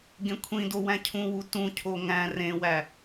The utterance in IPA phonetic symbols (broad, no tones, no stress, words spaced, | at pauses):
ɡẽkʷʰĩdo wæ̃cʰũwu tũcʰo ŋæ̃ rẽwæ